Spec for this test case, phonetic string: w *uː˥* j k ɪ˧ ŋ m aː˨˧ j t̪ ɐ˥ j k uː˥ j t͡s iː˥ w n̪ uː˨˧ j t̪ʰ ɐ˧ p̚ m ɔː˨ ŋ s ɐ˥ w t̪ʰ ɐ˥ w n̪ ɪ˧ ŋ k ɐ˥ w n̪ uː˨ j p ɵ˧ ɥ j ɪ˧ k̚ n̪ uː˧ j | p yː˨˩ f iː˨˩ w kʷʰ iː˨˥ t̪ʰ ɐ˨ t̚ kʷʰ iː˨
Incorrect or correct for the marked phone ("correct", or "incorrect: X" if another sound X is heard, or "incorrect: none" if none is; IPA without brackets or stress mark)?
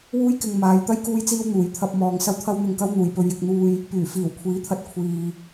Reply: correct